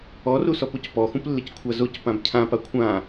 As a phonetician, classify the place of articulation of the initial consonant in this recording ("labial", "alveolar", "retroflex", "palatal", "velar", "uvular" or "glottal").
alveolar